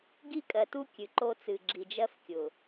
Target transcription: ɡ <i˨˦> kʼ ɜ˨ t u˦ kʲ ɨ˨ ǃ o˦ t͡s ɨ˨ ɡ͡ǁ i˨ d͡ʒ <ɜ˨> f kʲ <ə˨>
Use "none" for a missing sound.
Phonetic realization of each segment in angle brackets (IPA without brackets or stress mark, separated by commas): i˦, ɜ˦, ʊ˨